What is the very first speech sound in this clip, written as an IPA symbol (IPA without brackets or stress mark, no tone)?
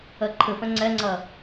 ɜ